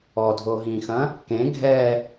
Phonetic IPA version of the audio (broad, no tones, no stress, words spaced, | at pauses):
ɔdʱoɦĩxɐ̃ | kẽ ɡʱɛ